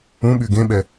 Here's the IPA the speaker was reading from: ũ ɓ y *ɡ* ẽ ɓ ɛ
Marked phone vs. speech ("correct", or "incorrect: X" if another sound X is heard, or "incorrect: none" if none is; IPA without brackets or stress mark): correct